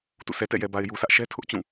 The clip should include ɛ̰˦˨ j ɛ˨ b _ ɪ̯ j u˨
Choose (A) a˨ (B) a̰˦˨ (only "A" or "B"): A